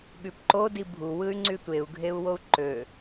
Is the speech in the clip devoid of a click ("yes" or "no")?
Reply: no